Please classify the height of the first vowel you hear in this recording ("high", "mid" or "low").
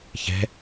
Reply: mid